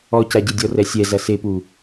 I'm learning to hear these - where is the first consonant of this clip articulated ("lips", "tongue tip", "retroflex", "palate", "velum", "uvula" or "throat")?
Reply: palate